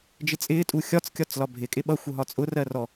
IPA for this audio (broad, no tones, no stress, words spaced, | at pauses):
d͡ʒɪt͡sʼɪːtʼu xʲɒt͡skʲɒt͡s lɒbʱɪkʼɪ ɓʌ xʷʌɦɒt͡sʼʊrɜ rɔ